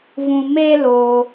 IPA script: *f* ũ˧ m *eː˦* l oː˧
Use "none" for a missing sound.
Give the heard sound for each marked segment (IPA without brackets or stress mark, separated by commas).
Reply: v, eː˦